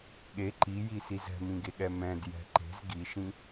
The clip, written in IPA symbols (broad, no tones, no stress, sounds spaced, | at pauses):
ɠ e ǃ i j i s i z ɛ̤ m ĩ ɡ e ɠ ɛ m ɛ̃ d j ɛ̤ ǃ e̤ z ɡ i ʃ ĩ